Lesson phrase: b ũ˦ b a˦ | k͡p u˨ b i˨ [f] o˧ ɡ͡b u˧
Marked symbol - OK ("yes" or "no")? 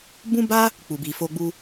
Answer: yes